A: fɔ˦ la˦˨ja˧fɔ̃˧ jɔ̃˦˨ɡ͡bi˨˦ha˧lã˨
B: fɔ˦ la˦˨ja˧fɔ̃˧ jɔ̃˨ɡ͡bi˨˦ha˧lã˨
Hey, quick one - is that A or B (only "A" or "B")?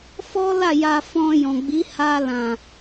B